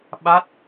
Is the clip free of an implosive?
no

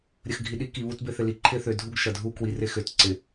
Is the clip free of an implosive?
no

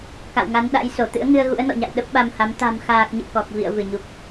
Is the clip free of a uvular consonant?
yes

